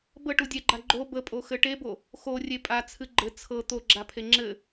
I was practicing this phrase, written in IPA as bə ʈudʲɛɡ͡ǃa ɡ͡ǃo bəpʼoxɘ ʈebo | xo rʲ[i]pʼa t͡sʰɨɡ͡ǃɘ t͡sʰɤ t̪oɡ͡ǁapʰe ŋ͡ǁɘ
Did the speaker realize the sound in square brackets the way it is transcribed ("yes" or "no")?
no